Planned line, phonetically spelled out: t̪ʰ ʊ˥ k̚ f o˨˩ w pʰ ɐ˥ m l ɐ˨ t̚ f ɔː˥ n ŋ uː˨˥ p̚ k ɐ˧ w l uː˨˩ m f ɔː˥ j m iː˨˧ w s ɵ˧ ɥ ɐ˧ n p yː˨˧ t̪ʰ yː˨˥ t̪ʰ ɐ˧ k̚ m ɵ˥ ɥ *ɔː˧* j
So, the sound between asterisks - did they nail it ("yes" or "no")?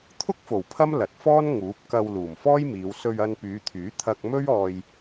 yes